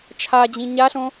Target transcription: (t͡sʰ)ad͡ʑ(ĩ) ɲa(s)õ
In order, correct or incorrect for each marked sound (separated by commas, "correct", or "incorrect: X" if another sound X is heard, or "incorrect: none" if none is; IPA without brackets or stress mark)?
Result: incorrect: t͡ʃʰ, correct, incorrect: ɬ